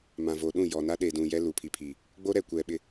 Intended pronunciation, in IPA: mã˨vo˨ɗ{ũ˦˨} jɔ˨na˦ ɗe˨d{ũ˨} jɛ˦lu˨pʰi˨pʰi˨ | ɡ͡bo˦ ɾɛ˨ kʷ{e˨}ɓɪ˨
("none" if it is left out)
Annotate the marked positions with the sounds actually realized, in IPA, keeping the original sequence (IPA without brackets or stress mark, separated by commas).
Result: ũ˦˨, ũ˨, ɛ˨